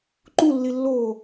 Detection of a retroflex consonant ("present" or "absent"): absent